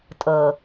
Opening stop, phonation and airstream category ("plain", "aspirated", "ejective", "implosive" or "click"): ejective